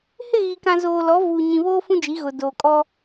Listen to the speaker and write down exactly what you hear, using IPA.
h ɪ˦˨ ɣ i˨ k ã˨ z oː˨ l ɔ˨˦ v uː˨ ɲ ĩ˨ β oː˦ f ũ˦ d͡ʒ i˨˦ ɣ ʊ˨ d oː˨ kʼ ɔ˦

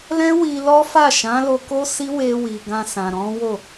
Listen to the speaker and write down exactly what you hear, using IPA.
l ɛ̃˦ w i˧ l ɔ˦ f a˦˨ ʃ ã˨˦ l o˧ k o˦ s i˦ w e˧ w i˨ ɡ ã˧ s ã˨ ɾ ɔ̃˨˦ w o˦˨

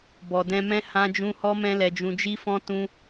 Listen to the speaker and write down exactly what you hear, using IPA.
b ɔ˨ d ɛ̃˧ m ɛ̃˦ h ã˦ d͡ʒ ũ˦ h ɔ˦ m ɛ̃˦ l ɛ˧ d͡ʒ ũ˧ d͡ʒ i˦ f ɔ̃˦ t ũ˦

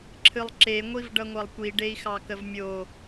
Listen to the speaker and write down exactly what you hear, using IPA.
ǁʰ ɨ lˠ ǁ e ŋʷ i v ɖ ʌ ŋʷ ʌ lˠ kʷ i ɖ e i̯ x ɑ k ə v mʲ o

